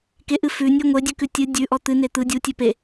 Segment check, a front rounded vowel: absent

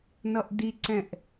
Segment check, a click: present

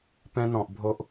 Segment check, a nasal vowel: present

